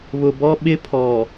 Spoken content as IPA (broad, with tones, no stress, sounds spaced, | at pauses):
β ʊ˨ b ɔ˦ ɓ ɪ˦ pʰ ɔ˨